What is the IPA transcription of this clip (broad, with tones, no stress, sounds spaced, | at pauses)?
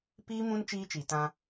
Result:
p iː˦ m ũ˦ n t͡ʃ iː˦ t͡ʃ i˨ t ã˦